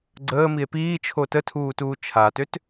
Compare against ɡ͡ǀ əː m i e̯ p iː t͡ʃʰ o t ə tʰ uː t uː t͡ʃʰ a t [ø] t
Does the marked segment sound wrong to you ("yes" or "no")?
no